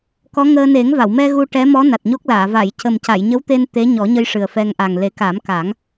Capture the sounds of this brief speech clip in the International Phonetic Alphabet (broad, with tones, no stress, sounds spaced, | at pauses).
k ɔ˧˥ ŋ əː˧ n e˨˩˦ ŋ v a˨˩˨ w m ɛ˧ ɣ u˧ ʈ ɛ˧˥ m ɔ˧˥ n a˨˩ t̚ ɲ o˦˥ k̚ l aː˨˩˨ v a˨˩˨ j c ə˨˩ m c a˨˩˨ j ɲ ə˧˥ w t̪ e˧ n t̪ e˧˥ ɲ ɔ˨˩˦ ɲ ə˧ j ʂ ɨ˨˩ ə̯ f ɛ˧ ŋ ʔ a˨˩ ŋ l e˨˩˦ k a˨˩˦ m k a˨˩˦ ŋ